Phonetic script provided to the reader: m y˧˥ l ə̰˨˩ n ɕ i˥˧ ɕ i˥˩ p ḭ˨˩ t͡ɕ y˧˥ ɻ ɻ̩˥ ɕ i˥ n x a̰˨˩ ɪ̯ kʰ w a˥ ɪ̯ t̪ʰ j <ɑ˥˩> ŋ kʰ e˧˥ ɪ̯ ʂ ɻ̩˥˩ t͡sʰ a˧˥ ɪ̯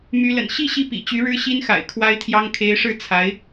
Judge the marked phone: incorrect: ɑ˥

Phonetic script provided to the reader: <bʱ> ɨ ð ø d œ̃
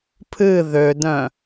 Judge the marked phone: incorrect: pʰ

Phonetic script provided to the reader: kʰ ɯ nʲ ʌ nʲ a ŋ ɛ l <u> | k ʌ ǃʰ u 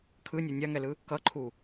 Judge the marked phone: incorrect: ɯ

